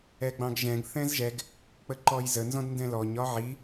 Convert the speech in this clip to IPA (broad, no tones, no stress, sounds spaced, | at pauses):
ɛ ɡ͡b ɑ̃ ɡ ʒ ɛ̃ ɡ θ ɛ̃ z ʒ ɛ ɡ | k͡p ə ǃ ɔ j z ə n z ɔ̃ d n d ɛ̃ l ɔ ɲ ɒ ʕ i